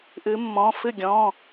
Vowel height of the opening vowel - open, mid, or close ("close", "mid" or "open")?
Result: close